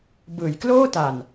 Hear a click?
no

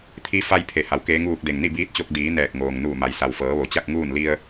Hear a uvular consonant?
no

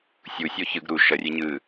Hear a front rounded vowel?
no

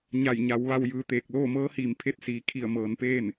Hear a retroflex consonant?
no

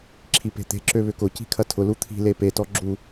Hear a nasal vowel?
no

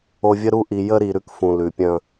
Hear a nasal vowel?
yes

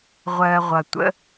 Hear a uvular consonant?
yes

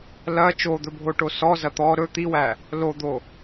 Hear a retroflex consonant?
yes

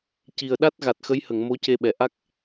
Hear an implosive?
yes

